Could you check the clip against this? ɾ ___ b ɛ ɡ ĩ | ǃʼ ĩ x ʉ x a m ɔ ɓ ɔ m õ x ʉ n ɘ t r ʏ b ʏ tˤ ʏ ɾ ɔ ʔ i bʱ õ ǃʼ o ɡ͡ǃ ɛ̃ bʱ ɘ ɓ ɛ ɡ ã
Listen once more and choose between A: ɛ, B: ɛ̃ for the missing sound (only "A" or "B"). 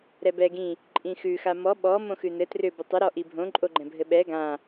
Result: A